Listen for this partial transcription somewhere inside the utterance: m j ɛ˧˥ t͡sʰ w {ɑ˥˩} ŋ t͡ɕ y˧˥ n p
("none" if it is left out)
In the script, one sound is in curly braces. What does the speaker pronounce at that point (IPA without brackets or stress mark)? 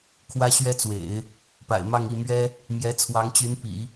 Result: ɑ˧˥